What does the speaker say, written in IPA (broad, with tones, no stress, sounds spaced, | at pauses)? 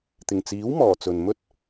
t̪ ɪ˨˩ ŋ t͡s iː˨˥ w m ɔː˨˩ t͡s ɵ˨ n m ɵ˥ t̚